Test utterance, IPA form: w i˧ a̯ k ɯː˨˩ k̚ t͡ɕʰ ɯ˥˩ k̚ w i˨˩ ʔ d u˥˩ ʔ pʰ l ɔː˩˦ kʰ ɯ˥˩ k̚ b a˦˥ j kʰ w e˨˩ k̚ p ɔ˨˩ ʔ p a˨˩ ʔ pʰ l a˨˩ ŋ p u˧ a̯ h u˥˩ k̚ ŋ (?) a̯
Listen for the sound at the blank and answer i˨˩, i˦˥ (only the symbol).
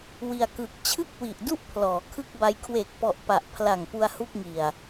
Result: i˨˩